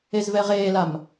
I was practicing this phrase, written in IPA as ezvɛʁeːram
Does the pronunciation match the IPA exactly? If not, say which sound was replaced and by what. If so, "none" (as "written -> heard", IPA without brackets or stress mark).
r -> l